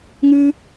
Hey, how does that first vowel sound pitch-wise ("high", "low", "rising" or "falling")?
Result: high